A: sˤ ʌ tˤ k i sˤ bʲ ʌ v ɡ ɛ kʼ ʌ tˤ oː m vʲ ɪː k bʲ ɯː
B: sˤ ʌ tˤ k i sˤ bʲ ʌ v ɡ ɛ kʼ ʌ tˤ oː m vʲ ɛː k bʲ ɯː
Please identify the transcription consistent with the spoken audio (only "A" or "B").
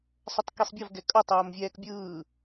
B